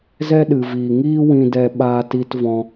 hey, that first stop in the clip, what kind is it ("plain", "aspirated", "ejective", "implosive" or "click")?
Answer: implosive